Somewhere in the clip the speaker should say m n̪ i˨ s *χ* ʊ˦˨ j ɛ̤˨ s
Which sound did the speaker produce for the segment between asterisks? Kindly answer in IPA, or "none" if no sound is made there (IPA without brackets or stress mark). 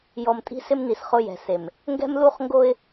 χ